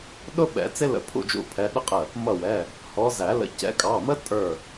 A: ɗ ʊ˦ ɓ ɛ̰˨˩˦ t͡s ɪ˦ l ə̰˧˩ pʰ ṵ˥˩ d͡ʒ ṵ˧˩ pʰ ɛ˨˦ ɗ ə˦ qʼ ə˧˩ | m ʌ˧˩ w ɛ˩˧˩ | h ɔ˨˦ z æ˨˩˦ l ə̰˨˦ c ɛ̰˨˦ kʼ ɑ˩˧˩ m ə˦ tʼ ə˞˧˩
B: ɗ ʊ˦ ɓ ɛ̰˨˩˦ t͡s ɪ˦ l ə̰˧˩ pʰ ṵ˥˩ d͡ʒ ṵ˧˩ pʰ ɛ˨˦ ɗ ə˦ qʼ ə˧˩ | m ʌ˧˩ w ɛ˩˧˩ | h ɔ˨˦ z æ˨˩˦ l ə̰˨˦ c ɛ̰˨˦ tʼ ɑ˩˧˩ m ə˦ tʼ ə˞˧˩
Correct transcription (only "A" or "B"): A